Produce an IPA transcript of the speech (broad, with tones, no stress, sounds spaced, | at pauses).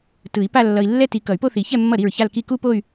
t ɯ˨˩˦ i̯ p a˥˧ lː ʌ˧ i̯ lː ɛ˥˧ t i˧ k ʌ˨˩˦ y̯ p o˥˧ θ i˨˩˦ ç ɛ˥˧ mː ʌ˥˩ ɾ i˥˩ ɹ ç a˥˧ l k i˥˧ k u˥˧ p o˥˧ y̯